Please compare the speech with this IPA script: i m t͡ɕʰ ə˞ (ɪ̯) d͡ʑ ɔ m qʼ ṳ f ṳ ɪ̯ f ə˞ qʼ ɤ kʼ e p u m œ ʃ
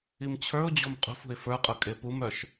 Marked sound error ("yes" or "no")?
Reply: yes